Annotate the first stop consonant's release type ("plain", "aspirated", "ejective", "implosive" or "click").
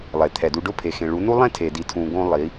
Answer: aspirated